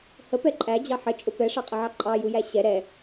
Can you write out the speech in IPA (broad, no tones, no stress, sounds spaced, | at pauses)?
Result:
h ə p ɛ ǃʼ æ d͡ʑ ɑ ħ ə t͡ʃʼ ʊ p ɛ ʂ ɑ qʼ ə ʕ ɑ ǃʼ ɑ j u j æ ɕ ɛ ɾ ɛ